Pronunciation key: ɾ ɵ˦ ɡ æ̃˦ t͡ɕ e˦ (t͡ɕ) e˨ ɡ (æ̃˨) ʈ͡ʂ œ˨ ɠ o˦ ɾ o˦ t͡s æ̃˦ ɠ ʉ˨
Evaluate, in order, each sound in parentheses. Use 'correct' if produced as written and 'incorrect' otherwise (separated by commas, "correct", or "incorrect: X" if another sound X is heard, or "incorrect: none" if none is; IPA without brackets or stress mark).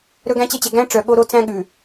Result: correct, incorrect: æ̃˦